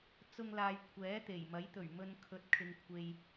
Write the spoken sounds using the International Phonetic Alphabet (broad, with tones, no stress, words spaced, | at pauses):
t͡sʊ˧ŋ laː˨j kʷʰɛː˨˥ t̪e˨˩jmɐ˨˥j t̪ɵ˨˩ɥmɵ˨n kʰɵ˨˥t̚kʰɪ˨ŋ kʷʰe˧j